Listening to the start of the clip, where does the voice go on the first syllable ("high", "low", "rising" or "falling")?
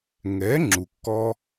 rising